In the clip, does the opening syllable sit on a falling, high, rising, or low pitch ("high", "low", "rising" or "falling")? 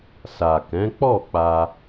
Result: low